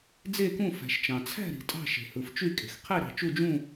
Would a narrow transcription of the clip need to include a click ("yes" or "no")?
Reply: no